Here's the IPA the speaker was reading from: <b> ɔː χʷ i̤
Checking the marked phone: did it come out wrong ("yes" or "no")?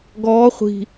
yes